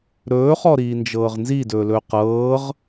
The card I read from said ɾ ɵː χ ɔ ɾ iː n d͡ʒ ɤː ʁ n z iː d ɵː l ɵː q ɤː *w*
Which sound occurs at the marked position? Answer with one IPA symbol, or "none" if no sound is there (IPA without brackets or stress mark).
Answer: ʁ